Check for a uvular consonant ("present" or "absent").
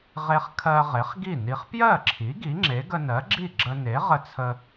present